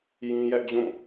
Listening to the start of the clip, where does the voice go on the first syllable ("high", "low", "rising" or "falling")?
high